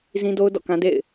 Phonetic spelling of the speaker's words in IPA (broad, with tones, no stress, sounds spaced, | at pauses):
z ĩ˦ d o˦ ʊ̯ d ɔ̰˦˨ k ã˦ d ḛ˦˨ ɪ̯